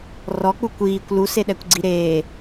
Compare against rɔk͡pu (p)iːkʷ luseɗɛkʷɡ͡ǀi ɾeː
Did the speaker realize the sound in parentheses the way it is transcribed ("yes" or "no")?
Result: no